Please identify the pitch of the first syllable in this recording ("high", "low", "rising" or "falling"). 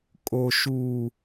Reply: low